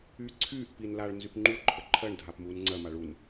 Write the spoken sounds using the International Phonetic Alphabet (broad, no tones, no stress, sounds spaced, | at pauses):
yː ǀʰ yː ʔ p i n l a ɭ n z y p ŋ͡ǃ u ǃʰ ə ǃʰ ɜ ɳ dʱ a p m uː n ŋ͡ǀ ɜ m a ɭ u n